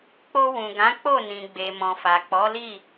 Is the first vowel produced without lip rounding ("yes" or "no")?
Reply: no